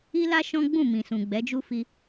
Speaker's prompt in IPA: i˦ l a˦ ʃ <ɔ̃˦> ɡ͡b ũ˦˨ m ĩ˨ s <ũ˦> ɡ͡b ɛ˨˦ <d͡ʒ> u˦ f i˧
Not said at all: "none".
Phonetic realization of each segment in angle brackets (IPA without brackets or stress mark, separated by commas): ɔ̃˦, ũ˨, d͡ʒ